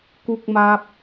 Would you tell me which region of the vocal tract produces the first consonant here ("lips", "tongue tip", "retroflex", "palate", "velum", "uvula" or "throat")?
velum